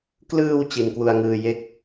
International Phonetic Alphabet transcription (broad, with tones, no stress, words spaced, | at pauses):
klɯː˧w t͡ɕi˧nkwu˧a̯ŋɯː˧ je˦˥k̚